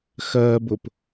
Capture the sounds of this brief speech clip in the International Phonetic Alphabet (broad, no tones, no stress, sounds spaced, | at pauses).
x ɜ b ʊ p